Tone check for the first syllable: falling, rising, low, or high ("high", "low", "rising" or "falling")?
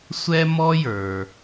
high